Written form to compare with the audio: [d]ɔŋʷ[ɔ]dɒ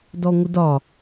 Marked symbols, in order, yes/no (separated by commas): yes, no